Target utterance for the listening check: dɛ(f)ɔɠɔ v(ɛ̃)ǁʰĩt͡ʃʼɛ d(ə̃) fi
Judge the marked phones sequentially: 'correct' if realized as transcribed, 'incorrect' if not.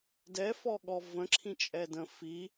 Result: correct, incorrect, correct

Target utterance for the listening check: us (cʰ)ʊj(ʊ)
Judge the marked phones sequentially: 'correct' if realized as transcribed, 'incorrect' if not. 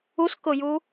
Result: incorrect, incorrect

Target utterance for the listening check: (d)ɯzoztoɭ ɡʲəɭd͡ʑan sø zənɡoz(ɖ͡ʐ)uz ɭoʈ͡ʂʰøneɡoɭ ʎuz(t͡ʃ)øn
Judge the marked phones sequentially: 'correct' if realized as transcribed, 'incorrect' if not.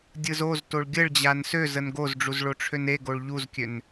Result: incorrect, correct, incorrect

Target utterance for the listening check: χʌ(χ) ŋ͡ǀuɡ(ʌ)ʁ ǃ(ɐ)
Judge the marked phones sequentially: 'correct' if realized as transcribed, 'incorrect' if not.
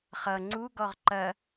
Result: incorrect, incorrect, correct

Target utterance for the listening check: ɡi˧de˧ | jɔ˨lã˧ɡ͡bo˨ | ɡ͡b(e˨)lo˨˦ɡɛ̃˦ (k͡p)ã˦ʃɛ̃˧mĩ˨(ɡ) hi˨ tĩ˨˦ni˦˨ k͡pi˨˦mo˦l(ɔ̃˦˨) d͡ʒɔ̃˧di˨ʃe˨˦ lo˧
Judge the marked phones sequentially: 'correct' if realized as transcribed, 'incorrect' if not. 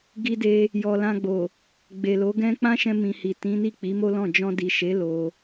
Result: correct, correct, incorrect, correct

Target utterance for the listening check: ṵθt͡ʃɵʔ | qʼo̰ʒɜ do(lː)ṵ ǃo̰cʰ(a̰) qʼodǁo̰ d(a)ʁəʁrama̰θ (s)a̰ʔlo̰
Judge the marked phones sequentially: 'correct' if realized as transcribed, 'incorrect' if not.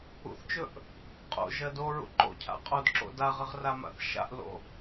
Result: incorrect, correct, correct, incorrect

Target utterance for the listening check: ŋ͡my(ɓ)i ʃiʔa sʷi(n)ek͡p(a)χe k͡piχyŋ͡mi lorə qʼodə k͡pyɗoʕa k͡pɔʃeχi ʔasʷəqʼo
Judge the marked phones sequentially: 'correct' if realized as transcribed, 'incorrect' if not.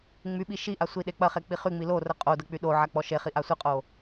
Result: correct, incorrect, incorrect

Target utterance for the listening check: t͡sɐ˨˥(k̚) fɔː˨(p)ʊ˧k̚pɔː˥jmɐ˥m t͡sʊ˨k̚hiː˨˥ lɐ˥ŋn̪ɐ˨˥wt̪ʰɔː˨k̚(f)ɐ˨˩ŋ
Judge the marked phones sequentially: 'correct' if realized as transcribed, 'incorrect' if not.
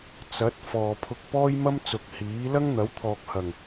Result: incorrect, incorrect, incorrect

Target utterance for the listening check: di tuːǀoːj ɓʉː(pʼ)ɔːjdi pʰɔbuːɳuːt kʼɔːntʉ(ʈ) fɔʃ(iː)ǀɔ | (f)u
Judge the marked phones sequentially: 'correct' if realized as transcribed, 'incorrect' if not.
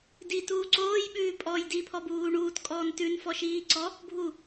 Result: correct, incorrect, correct, incorrect

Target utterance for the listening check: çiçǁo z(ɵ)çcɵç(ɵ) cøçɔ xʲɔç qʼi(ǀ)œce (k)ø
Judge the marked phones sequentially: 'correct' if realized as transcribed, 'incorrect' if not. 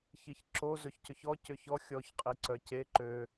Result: correct, incorrect, correct, incorrect

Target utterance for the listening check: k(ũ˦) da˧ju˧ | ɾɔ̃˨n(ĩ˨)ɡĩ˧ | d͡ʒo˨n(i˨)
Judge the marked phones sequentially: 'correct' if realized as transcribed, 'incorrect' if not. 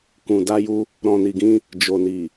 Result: incorrect, incorrect, correct

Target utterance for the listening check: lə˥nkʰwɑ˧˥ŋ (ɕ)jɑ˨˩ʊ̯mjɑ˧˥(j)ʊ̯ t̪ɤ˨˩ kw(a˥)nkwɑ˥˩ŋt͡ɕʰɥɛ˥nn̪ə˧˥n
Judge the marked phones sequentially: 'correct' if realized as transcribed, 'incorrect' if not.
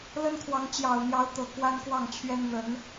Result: incorrect, incorrect, correct

